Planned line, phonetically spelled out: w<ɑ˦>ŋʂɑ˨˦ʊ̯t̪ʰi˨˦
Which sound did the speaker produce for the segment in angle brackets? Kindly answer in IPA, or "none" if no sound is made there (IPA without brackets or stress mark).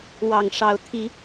ɑ˨˩